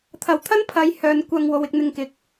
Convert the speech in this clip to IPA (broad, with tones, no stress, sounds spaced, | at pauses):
t̪ʰ ɐ˨˩ w t̪ʰ ɐ˥ n pʰ ɐ˨˥ j h œː˨ n kʷ ɐ˧ ŋ w o˨˧ w ɪ˧ k̚ n̪ ɪ˧ ŋ k ɪ˨ k̚